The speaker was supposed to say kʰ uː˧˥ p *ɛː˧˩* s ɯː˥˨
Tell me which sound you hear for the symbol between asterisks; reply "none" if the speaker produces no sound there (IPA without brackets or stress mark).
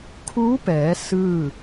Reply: ɛː˩˧